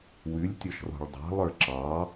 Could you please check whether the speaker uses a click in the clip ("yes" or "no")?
yes